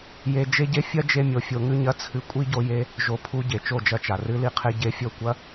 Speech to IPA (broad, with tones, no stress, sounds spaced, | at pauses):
j e˧ d͡ʒ e˦ ɟ e˦ fʲ ɐ˦ d͡ʒ e˧ mʲ o˨ fʲ o˧ ŋ ʉ˦ ɲ ɐ˦ t͡sʰ ɨ˧ kʷʼ i˦ ɟ o˧ j e˧ | ʒ o˧ pʰ u˧ ɟ e˨ t͡ʃ o˦˨ d͡ʒ ɐ˧ t͡ʃ a˨ r ɨ˦ l i˦ qʰ e˦ ɟ e˧ fʲ o˦˨ kʷ ɐ˦